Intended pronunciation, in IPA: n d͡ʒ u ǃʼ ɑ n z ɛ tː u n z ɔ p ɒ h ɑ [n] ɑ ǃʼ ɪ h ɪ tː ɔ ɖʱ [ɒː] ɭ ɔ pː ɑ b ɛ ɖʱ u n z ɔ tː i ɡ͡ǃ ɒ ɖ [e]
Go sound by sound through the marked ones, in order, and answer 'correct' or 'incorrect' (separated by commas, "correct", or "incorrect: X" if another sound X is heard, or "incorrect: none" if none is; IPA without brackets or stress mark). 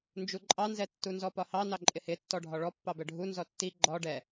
correct, incorrect: ɒ, incorrect: ɛ